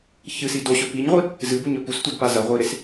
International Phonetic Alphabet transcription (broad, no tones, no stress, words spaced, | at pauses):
çɨsi doɕɵ piɲʁʷi | zɨbuɲɵ pustʷedpa zɐʁʷiɾes